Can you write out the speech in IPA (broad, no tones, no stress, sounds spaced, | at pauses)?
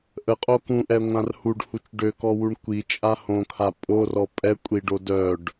ʔ ə qʼ o k ũ ʔ ɛ ŋʷ ã r h u ɖ h u t͡ʃ ɖ ø k ɔ w u ɳ kʷ i t͡ʃʼ a h õ kʰ a pʼ o r ɔ pʼ ɛ kʷʼ i ɖ o d œ ɖ